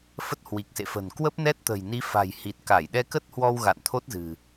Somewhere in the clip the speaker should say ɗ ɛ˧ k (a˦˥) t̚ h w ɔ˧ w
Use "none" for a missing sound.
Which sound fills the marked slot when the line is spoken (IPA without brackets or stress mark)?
ə˦˥